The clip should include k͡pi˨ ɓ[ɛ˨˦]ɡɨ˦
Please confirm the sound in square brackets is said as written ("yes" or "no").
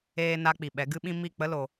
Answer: yes